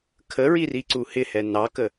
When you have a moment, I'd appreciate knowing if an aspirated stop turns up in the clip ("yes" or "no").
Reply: yes